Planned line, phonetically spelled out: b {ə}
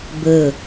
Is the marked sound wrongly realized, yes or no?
no